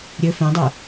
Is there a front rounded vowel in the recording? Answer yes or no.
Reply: yes